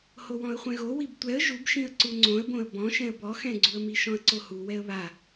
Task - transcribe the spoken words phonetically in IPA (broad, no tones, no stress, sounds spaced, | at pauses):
h o w ɔ̃ ə̯ χʷ ɛ̃ ɣ o w i b tʷ ɛ ə̯ ʒ u b ʃ ĩ ə̯ ǀ u ŋ͡ǀ õ ə̯ b õ ə̯ b ɔ̃ ʃ ɛ̃ ə̯ b ɔ x ɛ̃ ɡ͡ǀ u ə̯ m i ʃ ɔ̃ ə̯ ǀ o h u w ɛ ə̯ β a